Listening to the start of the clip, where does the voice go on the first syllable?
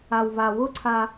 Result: low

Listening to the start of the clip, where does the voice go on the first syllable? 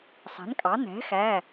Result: rising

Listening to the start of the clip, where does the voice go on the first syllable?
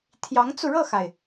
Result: rising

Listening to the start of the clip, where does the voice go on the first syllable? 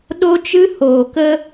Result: high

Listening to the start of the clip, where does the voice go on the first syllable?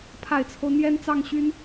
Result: low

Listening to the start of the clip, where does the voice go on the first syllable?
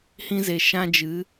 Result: high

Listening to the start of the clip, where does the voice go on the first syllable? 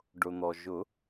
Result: low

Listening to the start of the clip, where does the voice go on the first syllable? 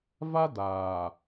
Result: high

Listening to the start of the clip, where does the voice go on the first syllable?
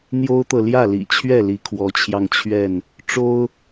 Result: high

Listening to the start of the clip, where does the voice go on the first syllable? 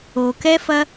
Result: low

